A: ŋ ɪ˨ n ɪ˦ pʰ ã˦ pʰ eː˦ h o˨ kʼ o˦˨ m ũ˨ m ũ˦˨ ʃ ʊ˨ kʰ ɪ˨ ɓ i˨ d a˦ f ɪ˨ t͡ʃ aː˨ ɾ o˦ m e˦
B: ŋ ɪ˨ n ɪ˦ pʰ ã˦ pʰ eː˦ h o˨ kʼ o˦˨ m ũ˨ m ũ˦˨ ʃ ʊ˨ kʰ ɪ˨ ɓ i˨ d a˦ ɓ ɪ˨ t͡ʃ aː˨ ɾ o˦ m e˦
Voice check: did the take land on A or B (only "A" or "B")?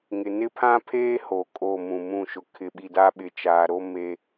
B